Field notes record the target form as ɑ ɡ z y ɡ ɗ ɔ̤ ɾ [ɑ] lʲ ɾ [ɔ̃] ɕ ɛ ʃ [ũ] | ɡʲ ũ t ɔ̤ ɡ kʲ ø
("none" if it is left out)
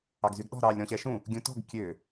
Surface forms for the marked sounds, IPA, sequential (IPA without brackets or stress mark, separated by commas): ɑ, ɔ̃, ũ